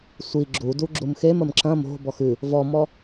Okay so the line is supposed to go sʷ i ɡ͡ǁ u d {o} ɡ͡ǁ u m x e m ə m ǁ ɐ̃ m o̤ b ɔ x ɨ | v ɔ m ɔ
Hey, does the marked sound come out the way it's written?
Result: no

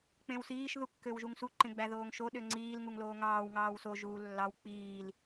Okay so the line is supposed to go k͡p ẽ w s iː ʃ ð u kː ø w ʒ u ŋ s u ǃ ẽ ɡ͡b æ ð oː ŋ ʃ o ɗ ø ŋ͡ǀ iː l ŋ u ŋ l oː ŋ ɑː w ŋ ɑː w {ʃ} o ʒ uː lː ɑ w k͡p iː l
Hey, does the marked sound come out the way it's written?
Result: no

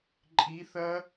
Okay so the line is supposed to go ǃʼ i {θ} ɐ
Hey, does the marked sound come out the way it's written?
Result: yes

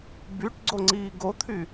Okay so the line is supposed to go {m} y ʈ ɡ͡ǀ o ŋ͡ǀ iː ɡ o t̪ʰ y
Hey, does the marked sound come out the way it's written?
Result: no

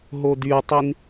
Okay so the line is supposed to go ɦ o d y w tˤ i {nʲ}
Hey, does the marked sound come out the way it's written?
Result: no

